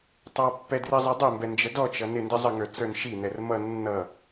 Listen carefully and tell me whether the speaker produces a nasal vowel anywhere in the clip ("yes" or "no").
no